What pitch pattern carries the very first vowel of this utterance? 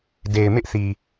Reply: low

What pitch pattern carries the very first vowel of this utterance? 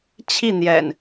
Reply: falling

